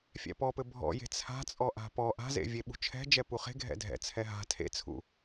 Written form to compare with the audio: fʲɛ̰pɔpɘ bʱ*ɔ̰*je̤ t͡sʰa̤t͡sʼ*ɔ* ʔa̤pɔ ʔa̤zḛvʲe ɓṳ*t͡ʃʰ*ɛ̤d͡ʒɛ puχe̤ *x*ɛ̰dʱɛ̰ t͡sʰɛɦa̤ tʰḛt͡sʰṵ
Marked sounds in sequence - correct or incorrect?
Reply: correct, correct, correct, incorrect: ɡʱ

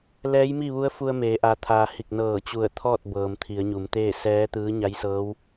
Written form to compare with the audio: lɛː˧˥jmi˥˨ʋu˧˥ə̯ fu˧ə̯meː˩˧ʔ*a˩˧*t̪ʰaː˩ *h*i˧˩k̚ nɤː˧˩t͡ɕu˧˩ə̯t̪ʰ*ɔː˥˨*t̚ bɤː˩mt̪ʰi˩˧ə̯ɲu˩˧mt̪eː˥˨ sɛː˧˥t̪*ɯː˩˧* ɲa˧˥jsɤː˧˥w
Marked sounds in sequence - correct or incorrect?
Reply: incorrect: a˩, correct, correct, incorrect: ɯː˧˥

